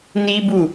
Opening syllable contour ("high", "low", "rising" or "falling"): high